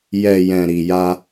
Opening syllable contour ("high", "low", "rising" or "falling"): low